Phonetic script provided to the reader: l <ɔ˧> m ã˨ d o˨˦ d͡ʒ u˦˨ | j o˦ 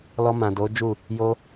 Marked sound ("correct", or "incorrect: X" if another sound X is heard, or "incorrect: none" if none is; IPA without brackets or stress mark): correct